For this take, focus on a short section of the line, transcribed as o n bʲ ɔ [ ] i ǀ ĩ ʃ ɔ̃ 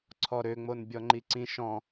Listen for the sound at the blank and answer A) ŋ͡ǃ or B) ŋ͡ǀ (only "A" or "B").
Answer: A